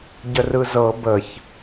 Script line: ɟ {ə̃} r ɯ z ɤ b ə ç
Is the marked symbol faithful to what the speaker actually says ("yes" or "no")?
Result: no